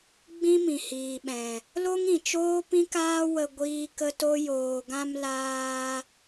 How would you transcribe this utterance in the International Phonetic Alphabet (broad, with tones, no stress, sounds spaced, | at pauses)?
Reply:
ɡ͡b ĩ˦ m ĩ˨ h iː˨ ɓ ɛ̃˨ | l o˦ ŋ ĩ˨ t͡ʃ oː˦ p ĩ˦ k aː˦ w ə˧ ɡʷ iː˦ k ə˦ t o˦ j oː˨ ɡ ã˧ m l aː˧